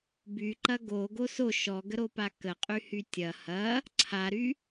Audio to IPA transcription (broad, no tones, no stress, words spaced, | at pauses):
by ǃɐɡo ɡoso ʃɔɡəɾopa kəqʼyhy tʲɐ hɐ | ǀʰaɾy